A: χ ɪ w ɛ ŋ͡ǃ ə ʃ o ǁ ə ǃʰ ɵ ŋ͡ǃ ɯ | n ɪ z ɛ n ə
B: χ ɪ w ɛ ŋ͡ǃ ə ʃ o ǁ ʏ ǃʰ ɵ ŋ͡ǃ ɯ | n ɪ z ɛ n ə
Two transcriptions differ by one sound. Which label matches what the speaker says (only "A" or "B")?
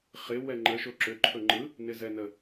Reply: B